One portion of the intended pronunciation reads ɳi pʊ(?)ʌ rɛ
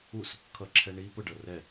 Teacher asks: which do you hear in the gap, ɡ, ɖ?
ɖ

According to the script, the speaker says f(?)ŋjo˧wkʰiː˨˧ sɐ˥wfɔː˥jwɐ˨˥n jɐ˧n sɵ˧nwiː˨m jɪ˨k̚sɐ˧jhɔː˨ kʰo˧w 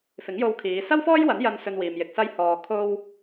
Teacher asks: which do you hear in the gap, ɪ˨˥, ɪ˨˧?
ɪ˨˥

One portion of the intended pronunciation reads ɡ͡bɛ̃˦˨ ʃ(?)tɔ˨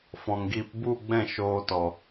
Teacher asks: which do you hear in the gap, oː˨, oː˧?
oː˧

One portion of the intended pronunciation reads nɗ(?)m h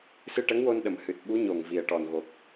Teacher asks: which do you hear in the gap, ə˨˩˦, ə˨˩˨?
ə˨˩˨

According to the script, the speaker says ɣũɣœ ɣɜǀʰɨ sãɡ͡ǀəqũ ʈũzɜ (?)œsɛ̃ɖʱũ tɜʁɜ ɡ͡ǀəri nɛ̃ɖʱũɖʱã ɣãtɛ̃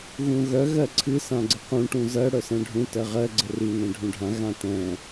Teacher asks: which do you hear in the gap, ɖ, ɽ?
ɽ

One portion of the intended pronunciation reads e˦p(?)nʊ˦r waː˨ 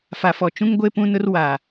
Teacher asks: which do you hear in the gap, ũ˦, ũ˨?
ũ˦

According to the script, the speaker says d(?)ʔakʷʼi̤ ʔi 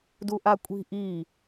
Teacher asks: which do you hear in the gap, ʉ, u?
u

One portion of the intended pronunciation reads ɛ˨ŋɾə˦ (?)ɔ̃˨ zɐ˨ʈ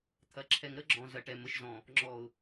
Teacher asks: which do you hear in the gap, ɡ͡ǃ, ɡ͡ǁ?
ɡ͡ǁ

